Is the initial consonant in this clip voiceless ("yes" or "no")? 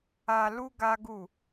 no